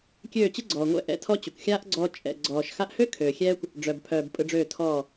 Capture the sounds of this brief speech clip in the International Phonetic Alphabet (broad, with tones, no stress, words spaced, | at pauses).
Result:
kʲøː˦˨t͡ɕɯ˦ɡ͡ǀɔː˨ŋʷɛ̰˧ ʔɛ̰˧tʰɔ˦t͡ɕø˨kʷ xʲaː˦ʔɡ͡ǀɔː˧ t͡ʃʼɛ̰˨ɡ͡ǀɔː˨ʃ xa˧ʔhø˦ kʰøː˨xʲɛː˦kʷ | ɖ͡ʐœ˨bpʰœː˨b pʼɯ˧ɖ͡ʐøː˦˨ tʰɔː˦˨